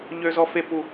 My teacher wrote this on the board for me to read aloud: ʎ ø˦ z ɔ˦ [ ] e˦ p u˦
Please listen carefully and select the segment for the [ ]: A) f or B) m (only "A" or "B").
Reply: A